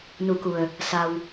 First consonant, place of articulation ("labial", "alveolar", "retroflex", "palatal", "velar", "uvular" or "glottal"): alveolar